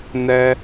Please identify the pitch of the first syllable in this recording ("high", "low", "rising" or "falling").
high